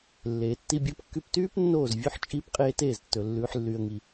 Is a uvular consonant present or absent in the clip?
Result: present